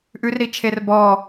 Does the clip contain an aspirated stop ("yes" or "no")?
yes